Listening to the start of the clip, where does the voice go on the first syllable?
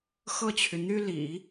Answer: falling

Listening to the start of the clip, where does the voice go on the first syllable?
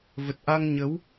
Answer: low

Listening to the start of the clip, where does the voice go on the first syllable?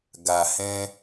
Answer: low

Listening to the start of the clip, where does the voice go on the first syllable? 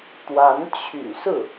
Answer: rising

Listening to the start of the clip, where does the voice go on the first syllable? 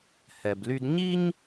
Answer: low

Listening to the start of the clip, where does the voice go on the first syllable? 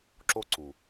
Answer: high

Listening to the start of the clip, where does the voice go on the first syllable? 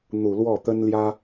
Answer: low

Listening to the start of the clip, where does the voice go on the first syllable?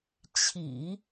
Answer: low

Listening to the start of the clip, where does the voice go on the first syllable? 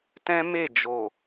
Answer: high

